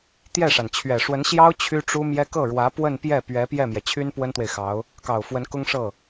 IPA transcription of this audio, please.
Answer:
t̪ j ɛ˥˩ ʂ a˩ n t͡ɕʰ ɥ ɛ˨˩ ʂ w ə˧˥ n ɕ j ɑ˥ ʊ̯ t͡ɕʰ y˥ ʈ͡ʂ u˥ m j ɛ˥ k ɤ˥˩ ɻ w ä˧˥ p w ə˥˧ n p j ɛ˥˩ p ɥ ɛ˧˥ p j ɛ˥˩ m j ɛ˩ t͡ɕʰ y˥ n p w ə˥ n t̪ w e˨ ɪ̯ x ɑ˧˥ ʊ̯ | k ɑ˨˩ ʊ̯ f w ə˧˥ n k ʊ˥ ŋ ʂ ɤ˥˩

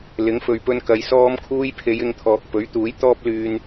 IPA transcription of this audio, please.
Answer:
l ɪ˨˥ ŋ f ɵ˨ ɥ p ɵ˧ n k ɐ˨˧ j s ɔː˧ m kʰ uː˧ j pʰ e˨˧ j ɪ˧ ŋ t̪ʰ ɔː˨ k̚ p ɵ˨˥ ɥ t̪ uː˨˥ j t̪ ɔː˥ p̚ l yː˧ n

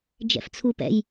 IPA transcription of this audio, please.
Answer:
d͡ʒ ɛ̰ f t͡sʰ u p ɛ̰ j

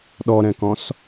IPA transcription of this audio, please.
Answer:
ɗ ɔ ɾ ɛ̃ k ɔ̃ s

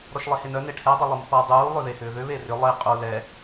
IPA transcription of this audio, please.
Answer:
ɾ ɔ ʃ lˠ e h e n œ n e ʈʰ ɛ dˤ ɐ lˠ u m θ ɔ dˤ uː lˠ ʏ ð e h ʏː ð ʏ β e r ʏ lˠ i qʼ u l ɛ

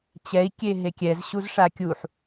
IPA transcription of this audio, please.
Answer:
t͡ɕ ɛ i̯ kʲ e ɦ e kʲ ɛ z ɕ u z ʂ a kʲ u ħ

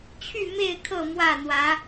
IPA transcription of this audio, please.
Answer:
t͡ɕʰ y˥˨ m e˥˨ ɪ̯ kʰ ɤ˥˨ m w ä˥˨ n̪ w ä˨˦

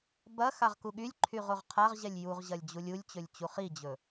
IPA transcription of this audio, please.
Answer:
b ɐ x a ʁ k u ɠ y lʲ ǃʰ y ʁ o ʁ qʰ a ʁ ʑ ɛ lʲ j u ʁ ʑ ɐ lʲ d͡ʑ u lʲ u lʲ t͡ɕ ɵ lʲ t͡ɕ u χ i d͡ʑ ɵ

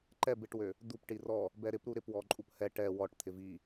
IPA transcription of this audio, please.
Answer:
ǃ ɛ b ɪ ʈ w ø | d̪ u p ʈ i r ɔ | b ɛ ɾ ɪ p ɾ u ɾ ɪ p w ɔ ǃʼ u p h ɛ ʈ ɛ w ɔ ʈ t̪ʰ ɪ v i

